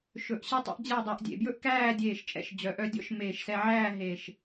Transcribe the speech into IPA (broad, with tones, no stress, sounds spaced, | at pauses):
ʃ ɵ˧˩ ʔ ɕ ɛ˥ tˤ ɛ̰˥ ʔ d͡ʑ æ˥˧ dˤ ɛ˧ ʔ dʲ ḛ˩˧ b j ɵ˥ ʔ k æː˥˧ dʲ eː˧˩ ʃ t͡ʃʼ ɛ̰˧˩ ʃ d͡ʑ œ˩˧ ʔ œ˧ dʲ ɔ̰˥ ʃ m eː˧˩ ʃ s ɛ˧ ʕ æː˥˧ ɦ e˧˩ ʃ